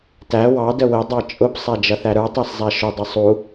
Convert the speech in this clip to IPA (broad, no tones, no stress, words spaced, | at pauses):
tæ wɑdə wɪ dˤɑt͡ʃʼʊpsˤæ d͡ʒʌθæɾə˞tˤæs zˤæʃʊdˤə sˤu